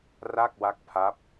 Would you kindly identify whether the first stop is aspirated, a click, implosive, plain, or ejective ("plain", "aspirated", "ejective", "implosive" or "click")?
plain